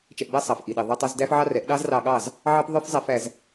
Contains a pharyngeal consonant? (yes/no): yes